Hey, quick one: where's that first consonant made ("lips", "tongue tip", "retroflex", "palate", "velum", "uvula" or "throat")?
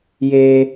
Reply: palate